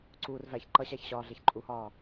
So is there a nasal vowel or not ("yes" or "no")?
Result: no